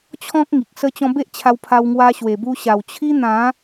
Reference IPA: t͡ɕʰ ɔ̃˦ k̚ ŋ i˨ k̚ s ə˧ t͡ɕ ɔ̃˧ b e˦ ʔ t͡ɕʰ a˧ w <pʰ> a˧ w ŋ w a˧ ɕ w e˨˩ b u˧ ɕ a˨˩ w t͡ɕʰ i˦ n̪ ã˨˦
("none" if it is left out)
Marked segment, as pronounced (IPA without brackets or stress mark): pʰ